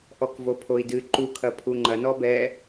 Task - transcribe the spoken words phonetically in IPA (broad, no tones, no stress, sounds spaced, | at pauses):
ʔ ɔ k v o pʰ o i̯ d ɨ ǃ u kʰ ɐ pʰ u ŋ͡ǃ ɐ n ɔ b ɛ